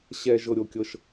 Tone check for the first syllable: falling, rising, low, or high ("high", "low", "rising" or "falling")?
high